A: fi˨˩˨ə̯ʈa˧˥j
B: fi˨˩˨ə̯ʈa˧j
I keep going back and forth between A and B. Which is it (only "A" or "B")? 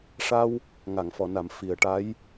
A